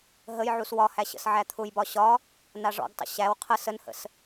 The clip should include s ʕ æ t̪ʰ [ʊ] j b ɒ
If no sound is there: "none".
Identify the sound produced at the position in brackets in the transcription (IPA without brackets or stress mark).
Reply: ʊ